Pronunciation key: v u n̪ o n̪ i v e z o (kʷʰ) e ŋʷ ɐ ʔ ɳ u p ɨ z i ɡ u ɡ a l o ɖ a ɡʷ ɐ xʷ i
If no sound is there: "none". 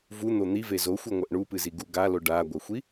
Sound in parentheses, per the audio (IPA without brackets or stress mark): xʷ